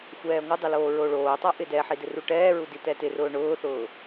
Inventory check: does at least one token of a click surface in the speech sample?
no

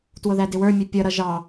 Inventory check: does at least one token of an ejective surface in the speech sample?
no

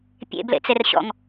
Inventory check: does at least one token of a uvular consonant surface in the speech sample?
no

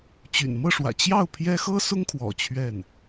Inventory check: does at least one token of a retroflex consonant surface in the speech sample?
yes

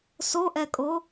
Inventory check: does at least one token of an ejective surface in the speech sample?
yes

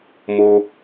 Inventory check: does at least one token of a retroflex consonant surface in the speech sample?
no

